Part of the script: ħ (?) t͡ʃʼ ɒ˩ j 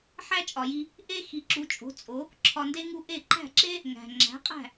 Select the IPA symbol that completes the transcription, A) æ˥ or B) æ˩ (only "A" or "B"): A